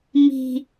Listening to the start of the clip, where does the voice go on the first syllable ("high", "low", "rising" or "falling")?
low